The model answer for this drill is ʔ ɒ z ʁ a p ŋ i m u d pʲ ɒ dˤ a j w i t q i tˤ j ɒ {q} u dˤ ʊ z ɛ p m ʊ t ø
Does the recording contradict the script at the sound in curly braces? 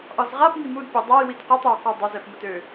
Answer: no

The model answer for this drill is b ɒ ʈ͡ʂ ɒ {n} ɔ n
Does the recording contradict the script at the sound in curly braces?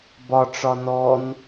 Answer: no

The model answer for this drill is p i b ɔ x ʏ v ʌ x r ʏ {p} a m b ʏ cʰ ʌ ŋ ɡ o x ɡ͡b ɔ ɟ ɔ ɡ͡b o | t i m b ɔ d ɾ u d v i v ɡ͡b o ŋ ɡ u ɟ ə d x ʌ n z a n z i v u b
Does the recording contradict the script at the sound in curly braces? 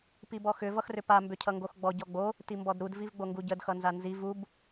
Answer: no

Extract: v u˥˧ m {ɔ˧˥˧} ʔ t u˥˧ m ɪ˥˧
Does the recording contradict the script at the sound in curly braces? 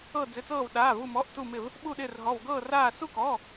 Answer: no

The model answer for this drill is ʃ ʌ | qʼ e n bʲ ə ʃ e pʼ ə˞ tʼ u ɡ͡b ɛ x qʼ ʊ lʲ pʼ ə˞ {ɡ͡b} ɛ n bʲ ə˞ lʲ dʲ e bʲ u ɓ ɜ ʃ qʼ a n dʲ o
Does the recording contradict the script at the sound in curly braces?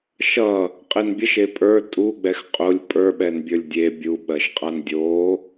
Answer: yes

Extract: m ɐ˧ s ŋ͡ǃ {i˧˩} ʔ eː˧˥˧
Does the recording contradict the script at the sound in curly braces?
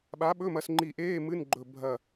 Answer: no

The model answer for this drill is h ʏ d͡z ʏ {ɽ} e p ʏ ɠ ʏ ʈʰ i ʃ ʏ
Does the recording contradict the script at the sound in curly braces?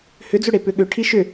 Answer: no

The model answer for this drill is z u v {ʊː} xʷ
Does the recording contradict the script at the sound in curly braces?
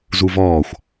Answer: yes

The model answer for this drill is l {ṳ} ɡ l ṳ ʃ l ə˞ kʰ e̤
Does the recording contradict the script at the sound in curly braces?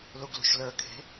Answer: yes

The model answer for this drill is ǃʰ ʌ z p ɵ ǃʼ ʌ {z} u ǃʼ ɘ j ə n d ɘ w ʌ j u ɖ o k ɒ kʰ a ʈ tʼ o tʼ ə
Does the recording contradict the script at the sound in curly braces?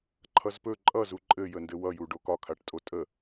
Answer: no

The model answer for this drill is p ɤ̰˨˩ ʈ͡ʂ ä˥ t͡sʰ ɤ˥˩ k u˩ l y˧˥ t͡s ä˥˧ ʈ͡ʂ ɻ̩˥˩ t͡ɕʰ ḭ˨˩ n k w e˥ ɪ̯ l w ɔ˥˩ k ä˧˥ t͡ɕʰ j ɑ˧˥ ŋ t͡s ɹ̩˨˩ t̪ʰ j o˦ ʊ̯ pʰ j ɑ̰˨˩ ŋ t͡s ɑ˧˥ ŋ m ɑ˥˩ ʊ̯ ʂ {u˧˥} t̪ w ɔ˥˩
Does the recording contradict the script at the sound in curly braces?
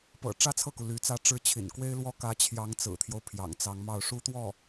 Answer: yes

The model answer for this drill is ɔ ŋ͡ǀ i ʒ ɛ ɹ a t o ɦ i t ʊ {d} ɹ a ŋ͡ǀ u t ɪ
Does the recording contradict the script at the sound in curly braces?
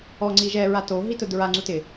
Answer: no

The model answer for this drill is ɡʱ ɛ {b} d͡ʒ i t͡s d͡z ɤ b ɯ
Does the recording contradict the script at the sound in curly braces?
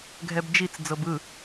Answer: no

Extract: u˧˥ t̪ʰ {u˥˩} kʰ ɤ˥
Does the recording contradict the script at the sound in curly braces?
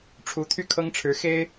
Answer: yes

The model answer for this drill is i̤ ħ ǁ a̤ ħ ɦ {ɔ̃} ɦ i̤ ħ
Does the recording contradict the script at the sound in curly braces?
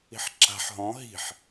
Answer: no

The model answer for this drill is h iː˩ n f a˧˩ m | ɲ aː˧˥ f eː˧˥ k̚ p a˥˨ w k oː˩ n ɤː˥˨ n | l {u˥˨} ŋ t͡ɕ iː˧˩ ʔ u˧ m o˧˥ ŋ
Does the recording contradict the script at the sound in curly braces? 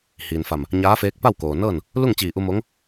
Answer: no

